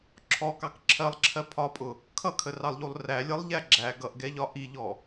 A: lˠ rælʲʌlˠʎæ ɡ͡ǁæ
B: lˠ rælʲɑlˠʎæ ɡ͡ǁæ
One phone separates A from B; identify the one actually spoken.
A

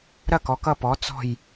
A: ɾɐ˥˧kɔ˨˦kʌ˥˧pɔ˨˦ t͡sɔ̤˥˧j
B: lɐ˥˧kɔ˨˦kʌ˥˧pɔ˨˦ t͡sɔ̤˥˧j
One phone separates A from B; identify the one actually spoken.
A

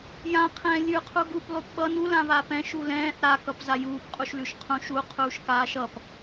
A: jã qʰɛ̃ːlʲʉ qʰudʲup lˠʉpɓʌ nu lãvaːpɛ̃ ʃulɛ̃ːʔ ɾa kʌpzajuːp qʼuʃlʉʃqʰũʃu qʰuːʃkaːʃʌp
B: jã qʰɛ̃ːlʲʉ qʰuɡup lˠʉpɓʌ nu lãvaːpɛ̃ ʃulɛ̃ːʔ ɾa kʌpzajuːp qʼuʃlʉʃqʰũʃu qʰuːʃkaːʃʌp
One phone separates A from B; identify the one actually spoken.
B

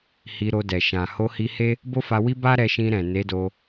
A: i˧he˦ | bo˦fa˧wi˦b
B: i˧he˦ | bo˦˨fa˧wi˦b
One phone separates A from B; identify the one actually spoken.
A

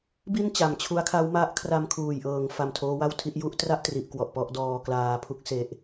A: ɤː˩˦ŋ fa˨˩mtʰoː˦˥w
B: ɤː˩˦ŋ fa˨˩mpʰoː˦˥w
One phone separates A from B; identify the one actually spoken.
A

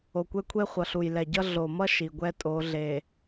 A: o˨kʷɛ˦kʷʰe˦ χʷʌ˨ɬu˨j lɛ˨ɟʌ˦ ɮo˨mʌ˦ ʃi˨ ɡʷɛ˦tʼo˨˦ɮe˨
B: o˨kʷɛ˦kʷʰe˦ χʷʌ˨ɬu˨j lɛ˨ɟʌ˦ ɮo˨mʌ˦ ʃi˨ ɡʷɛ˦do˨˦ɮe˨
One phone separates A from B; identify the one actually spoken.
A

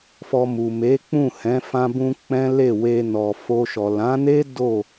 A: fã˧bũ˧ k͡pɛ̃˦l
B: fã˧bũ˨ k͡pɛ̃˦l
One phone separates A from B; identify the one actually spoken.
A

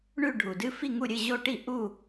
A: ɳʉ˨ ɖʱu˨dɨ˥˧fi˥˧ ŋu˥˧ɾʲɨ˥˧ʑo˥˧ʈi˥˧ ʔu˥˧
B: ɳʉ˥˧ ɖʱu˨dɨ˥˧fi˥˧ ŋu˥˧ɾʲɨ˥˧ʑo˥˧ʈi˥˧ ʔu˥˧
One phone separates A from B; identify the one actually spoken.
B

